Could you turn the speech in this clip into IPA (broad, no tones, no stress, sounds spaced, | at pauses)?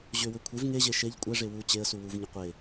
ʑ ʏ w ʏ kʷʰ e v ŋ e ʑ e ʃ e ʎ kʷʼ ɛ ʐ e w u t͡ɕ e ə̯ s u w u v ɲ ʏ qʷ e